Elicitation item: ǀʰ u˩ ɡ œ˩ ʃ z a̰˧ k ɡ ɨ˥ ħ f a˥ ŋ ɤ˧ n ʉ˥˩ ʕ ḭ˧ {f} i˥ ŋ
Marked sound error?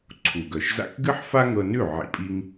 yes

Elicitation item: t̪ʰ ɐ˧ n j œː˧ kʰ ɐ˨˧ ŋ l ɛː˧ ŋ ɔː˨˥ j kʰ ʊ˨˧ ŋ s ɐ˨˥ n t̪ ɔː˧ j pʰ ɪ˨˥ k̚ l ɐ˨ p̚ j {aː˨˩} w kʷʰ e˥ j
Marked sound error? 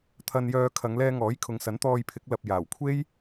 no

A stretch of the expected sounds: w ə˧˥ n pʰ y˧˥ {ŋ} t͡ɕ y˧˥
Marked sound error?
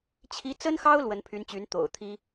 yes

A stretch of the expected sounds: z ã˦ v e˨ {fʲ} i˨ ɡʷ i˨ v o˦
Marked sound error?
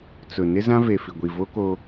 yes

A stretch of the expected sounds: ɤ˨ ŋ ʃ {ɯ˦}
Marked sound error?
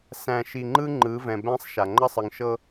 yes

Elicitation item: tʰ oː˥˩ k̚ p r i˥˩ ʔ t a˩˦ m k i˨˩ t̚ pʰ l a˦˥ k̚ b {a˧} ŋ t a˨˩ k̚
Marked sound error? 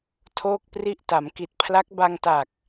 no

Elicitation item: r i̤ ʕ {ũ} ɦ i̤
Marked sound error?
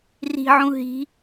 no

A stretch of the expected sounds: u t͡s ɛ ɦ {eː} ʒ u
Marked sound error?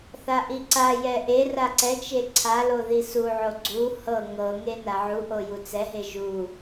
yes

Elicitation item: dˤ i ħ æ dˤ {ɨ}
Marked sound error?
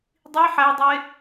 yes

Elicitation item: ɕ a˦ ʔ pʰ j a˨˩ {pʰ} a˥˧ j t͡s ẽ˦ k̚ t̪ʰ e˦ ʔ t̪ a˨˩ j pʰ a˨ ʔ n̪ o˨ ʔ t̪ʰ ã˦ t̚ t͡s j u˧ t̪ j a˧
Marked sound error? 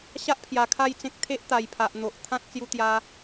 yes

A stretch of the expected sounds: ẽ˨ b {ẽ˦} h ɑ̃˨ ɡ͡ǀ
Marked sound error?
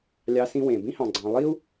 yes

